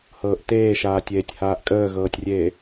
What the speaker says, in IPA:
h ɤː ʔ t eː ʃ aː tʲ eː tʲ h aː ʔ kʼ əː ɣ ɤː tʲ rʲ eː

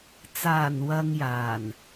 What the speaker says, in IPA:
t͡s aː˨˩ n w ɐ˨ ŋ j aː˨˩ n

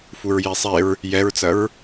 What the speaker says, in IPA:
f u ɹ j i sˤ e ɹ | j ɛ ɹ t͡s ɐ ɹ

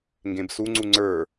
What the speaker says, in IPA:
ŋ ɡ ẽ b s u ŋ͡ǀ u ŋ͡ǀ ə˞

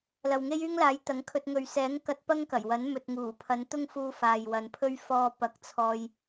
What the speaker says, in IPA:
l ɐ˨ w ŋ e˥ j yː˥ ŋ l aː˨˥ j t̪ ɐ˨˥ ŋ kʰ ɵ˧ t̚ ŋ ɵ˨ ɥ s ɛː˨˥ ŋ k ɐ˧ t̚ p ɐ˥ ŋ k ɐ˨˩ j w ɐ˨˥ n m ɵ˨ t̚ ŋ uː˨˩ pʰ ɐ˨˧ n t̪ ʊ˥ ŋ f uː˧ f aː˨ j w ɐ˨˧ n pʰ ɵ˥ ɥ f ɔː˧ p ɐ˨˥ k̚ t͡sʰ ɔː˧ j

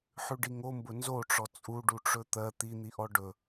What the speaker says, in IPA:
ħ ʉ ɖ i ŋ o m b ʊ n z o ʈ͡ʂ ɔ t͡sʼ u ɖ u ʈ͡ʂ ɵ t̪ ɜ t̪ i n̪ i ʔ ɔ ɖ ɵ

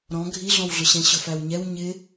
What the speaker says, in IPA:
ɾ ɔ̃ ɡʱ i ɮ ɔ̃ w ɮ ʊ ɕ ɛ̃ ɕ ʊ f æ w ɲ ɛ w ɲ ɪ

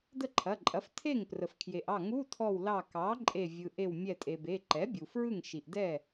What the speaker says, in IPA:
d ə˥˩ ǃʰ ɐ˩˧˩ ǃʼ ɐ˩˥ f tʰ e˥˩ ŋ p r ə˩ f kʰ j e˩ ʔ ɑ˥˩ ŋ u˧˥˧ tʰ ɔ˧˩ w l ɑ˧˩ k ɑ˩˥ ǃʼ e˧˩ vʲ ɯ˩ ʔ e˧˩ w mʲ ɛ˧˩ tʼ e˩ b e˩˧˩ ǃ ɛ˩˥ bʲ u˩ f ɹ ɯ˥˩ ŋ ʃ i˩ ʔ d ɛ˥˩

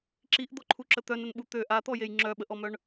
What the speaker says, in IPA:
ǁ i ʔ d̪ ɔ ǃʰ u ǁ ə t̪ œ n ə n ɓ u t̪ ø ʔ a t̪ ɔ j e j ŋ͡ǁ œ ɓ ə ʔ ɔ m œ ɳ

